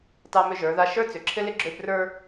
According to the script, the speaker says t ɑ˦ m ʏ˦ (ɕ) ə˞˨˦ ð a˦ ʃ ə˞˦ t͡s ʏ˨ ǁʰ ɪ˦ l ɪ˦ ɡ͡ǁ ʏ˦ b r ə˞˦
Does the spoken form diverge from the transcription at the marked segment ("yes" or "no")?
yes